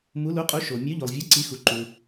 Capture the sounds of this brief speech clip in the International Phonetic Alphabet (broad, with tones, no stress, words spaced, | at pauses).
mu˨˦lu˨˦qʼu˨˦ ʃo˩ mʲœ˨˦ʎo˩lˠvʲo˨˦ ǀi˨˦xu˩ ǃu˩